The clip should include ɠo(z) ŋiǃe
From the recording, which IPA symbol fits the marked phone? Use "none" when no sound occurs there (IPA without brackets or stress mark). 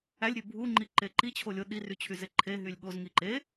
z